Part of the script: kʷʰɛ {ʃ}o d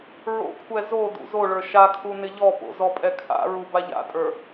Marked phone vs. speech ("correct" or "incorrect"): incorrect